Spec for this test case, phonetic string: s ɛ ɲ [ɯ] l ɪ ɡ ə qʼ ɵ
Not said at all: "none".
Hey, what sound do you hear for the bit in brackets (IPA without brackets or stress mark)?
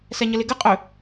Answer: ə